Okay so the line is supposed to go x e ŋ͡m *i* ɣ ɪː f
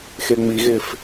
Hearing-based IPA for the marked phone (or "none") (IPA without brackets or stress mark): i